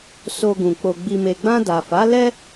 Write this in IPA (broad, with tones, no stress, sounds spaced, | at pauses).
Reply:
s o˧ ɡ ũ˨ k͡p o˨ ɡ͡b i˨ m e˨ ɡ͡b ã˧ d a˨ f a˨˦ l ɛ˦